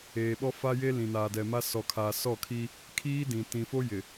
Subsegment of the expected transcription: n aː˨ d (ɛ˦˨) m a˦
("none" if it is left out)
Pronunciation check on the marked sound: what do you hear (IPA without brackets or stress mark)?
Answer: ɛ˨